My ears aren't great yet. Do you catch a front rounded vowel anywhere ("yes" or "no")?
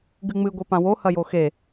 no